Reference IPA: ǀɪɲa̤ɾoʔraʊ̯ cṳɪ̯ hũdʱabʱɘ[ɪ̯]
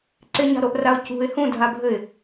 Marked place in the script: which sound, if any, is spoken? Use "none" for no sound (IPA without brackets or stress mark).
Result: ɪ̯